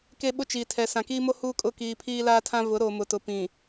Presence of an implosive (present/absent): present